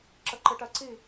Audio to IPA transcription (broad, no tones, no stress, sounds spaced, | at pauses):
ǁ ə ǃ ɨ ʈ ɜ ǀ i